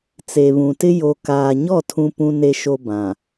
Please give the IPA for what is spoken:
t͡se˨βũ˨tɪ˦ jo˨kaː˨ɲɔ˦˨ tʰũ˦pũ˦ne˦ ʃo˦bã˨

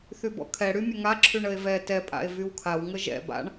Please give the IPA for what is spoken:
θybɔ̰kʰɛ ɽymʲəŋa ǁʰyɳəe̯vɛ tɛ pʼa̰e̯vywkʰaw ŋəʒɛ̰ ba̰ɳ

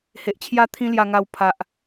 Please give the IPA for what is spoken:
he˨ʔt͡ɕʰja˥˧ t̪ʰĩ˦lja˧ŋa˧w pʰa˨ʔ

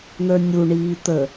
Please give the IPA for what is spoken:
n̪ə˞nʲuɳiː t̪ə

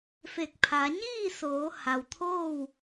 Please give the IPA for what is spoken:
fe˧˩k̚ pʰa˩˧ ɲiː˥˨soː˩˧ ha˩wt̪ʰoː˥˨w

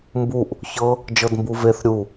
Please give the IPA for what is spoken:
mbuʔ | çɤ | d͡ʒɤdmbuveθ ɾʲu

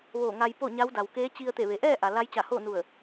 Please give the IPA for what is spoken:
ʋoː˧˩ŋa˧jpo˥˨ ɲa˧˥wda˩wkeː˧˥ t͡ɕi˧ə̯t̪e˧˩ʋe˩ ʔɛː˥˨ ʔa˩la˧˥j t͡ɕa˧˩hoː˥˨nu˧˩ə̯

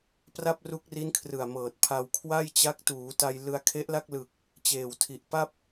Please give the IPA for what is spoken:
pra˥˩p̚ru˦˥k̚ri˦˥n kʰrɯ˨˩a̯mɤː˨˩t̚ pʰa˧w kʰwa˥˩jt͡ɕa˦˥k̚ tuː˩˦ta˧j lɯ˧a̯kʰe˦˥ʔla˥˩k̚lɯ˨˩k̚ | t͡ɕeː˨˩wtʰi˨˩ʔ pa˥˩p̚

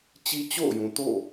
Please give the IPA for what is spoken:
t͡ɕi˦t͡ɕo̰˦˨ʊ̯jũ˨to̰˦˨

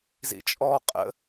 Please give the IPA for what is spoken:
zḭt͡ʃʼɔ qʼə̰

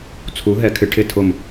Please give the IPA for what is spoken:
t͡sʰu˨˥ɦɛ˨˥kʰɪ˨˥ ʈʰɪ˦˨tʰʊ˦˨m

